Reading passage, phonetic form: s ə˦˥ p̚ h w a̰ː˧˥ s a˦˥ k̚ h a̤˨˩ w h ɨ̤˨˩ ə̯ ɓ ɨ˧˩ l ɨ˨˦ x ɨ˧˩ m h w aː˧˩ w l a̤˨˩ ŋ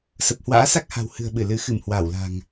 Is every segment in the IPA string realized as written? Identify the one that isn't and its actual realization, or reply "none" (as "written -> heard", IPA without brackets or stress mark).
ə˦˥ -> ə˨˩